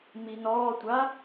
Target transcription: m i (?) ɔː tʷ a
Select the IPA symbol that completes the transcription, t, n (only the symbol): n